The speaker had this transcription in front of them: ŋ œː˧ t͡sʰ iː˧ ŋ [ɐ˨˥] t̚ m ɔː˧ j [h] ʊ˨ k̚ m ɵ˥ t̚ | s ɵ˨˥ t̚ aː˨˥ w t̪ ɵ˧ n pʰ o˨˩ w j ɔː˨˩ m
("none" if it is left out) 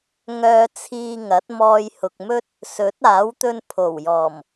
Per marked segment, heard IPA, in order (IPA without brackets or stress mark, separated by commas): ɐ˨˥, h